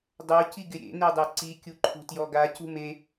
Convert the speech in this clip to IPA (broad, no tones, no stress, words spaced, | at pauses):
dˤo ciɡɪɾʲḛ nedˤɛǀi kʲuǃʰṳtjɔɡa cṳme